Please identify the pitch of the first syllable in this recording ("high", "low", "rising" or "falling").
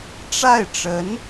falling